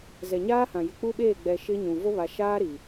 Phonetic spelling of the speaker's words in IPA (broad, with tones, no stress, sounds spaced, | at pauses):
z ɛ˨ ɲ aː˦ h ã˨ j ɪ˨ k͡p u˦ ɓ eː˦˨ ɡ͡b ɛ˨ ʃ ɪ˦ ɲ ũ˨ v o˦ β a˨ ʃ aː˦ ɾ i˨